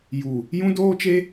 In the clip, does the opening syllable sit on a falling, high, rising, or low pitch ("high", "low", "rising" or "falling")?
low